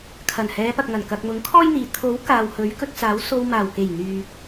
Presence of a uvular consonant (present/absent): absent